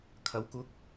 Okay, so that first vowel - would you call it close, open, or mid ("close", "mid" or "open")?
open